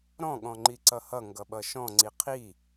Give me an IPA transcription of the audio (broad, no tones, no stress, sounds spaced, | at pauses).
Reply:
ɾ ɔ̃ ɠ ɔ̃ ŋ͡ǃ i ǀ ʌ h ʌ ŋ ɡ ʌ ɓ ʌ ʃ ɔ̃ ŋ͡ǀ i qʰ i